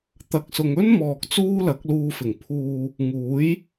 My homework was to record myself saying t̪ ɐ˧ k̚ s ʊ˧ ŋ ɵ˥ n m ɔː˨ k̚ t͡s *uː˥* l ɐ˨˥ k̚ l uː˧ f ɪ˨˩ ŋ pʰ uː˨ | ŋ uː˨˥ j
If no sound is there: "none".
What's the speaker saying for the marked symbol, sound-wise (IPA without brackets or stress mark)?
uː˥